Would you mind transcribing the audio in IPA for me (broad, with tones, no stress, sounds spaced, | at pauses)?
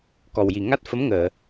k ɔ˨˩ w j i˨˩ ŋ a˦˥ t̚ f ə˧˥ m ŋ əː˨˩˨